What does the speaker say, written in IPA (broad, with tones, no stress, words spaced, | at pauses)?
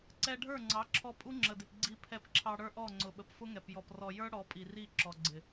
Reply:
ǀɛ˧ɖʱə˞˦˨ŋ͡ǀɑ˨˦ǁʰɔ˧ pʼu˦ŋ͡ǁə˨dɪ˨p ɡ͡ǀi˦ pʰɛ˧pǁʰɑ˧ɽə˞˦ʔɔ˦˨ ŋ͡ǀʊ˨ɓə˨p fʊ˦ŋɛ˨p jɔ˨prɔ˨jə˞˦ ɽɔ˨˦pʼi˨ ri˦˨ǁɔ˨ɡ͡ǀɪ˨